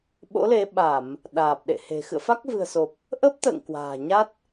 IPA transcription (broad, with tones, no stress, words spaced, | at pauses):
ɓo̰˧˥le˨˦ɓa˧˩˨m | ɗaː˨˩p̚ɗḛ˧˨he̤˨˩ xɨ̰˧˨ə̯fa˦˥k̚vɨ̤˨˩ə̯so˨˩p̚ | ʔə˦˥p̚t̪ə̰ː˧˨ŋ kwa̤ː˨˩ ɲa˦˥t̚